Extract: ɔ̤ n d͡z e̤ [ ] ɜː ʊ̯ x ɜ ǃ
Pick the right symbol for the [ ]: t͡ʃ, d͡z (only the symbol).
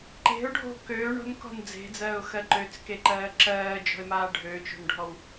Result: d͡z